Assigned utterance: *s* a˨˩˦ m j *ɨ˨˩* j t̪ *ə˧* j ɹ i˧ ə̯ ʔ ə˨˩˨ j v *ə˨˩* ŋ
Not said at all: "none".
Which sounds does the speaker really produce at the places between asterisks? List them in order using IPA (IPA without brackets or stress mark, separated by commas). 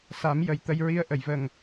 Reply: s, ə˨˩, ə˧, ə˨˩